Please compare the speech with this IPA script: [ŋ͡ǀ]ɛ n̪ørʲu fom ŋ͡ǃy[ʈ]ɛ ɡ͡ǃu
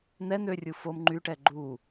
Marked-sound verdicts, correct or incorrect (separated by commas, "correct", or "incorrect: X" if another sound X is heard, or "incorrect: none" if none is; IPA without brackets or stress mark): incorrect: n̪, correct